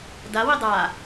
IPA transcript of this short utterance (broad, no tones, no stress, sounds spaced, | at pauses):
d a w i dˤ a